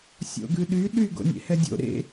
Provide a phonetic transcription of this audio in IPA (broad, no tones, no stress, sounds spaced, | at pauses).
sʲ o̰ ɡ ʉ ɗ y ɗ y ɡ o̰ nʲ ḛ h ɛ dʲ o̰ ɾ ḛ